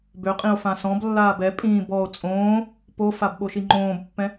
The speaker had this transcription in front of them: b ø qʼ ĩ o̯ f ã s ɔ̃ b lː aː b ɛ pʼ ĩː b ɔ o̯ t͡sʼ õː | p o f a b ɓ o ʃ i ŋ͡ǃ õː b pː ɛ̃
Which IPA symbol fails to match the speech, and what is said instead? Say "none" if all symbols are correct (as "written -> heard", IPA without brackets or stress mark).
none